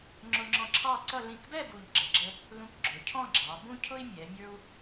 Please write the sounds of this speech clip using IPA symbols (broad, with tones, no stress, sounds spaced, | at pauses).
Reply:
ŋ͡ǁ ʊ˧ ŋ͡ǁ ɔ̃˧ ǁʰ ɑ˥˧ ǀ ʌ˥˧ l ĩ˧˩ k b ɛ˥˧ b u˧˩ ʎ ɡ͡ǁ ə˩˧ ɡ͡ǁ ə˥ | l ũ˧ k ɡ͡ǁ ʊ˩˧ cʰ ɔ̃˥˧ ɡ͡ǁ ɑ˩˧ b ũ˥ cʰ ʊ˥ i̯ mʲ ɛ˩˧ mʲ ə˞˥ u̯